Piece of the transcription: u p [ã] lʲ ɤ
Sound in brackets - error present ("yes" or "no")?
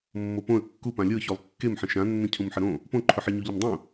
no